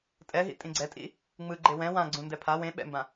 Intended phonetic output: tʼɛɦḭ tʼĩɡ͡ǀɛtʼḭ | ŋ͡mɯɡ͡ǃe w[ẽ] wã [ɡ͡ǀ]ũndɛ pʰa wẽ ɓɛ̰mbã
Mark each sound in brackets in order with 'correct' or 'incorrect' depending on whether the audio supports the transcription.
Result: incorrect, correct

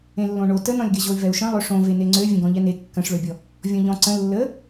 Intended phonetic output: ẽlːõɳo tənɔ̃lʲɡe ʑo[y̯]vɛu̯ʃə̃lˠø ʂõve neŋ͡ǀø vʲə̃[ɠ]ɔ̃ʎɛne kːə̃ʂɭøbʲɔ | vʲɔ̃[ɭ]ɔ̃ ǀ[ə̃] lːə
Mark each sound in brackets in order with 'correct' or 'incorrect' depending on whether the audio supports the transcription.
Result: correct, incorrect, incorrect, correct

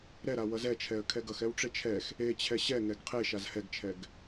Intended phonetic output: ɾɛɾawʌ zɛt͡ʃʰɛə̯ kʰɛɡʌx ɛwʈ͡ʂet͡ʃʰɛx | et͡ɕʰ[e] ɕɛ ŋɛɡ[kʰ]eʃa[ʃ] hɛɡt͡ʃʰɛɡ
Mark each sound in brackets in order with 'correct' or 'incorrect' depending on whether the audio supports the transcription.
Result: incorrect, incorrect, incorrect

